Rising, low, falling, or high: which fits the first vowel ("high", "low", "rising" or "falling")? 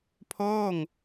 falling